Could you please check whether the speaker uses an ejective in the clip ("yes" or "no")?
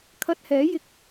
no